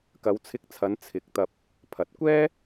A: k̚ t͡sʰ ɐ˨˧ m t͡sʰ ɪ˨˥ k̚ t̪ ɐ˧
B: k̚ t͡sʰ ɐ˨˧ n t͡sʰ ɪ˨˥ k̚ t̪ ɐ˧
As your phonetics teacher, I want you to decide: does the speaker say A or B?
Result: B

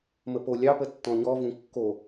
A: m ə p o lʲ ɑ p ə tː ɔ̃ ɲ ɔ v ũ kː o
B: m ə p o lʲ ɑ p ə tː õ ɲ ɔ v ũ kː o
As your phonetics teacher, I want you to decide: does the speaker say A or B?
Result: A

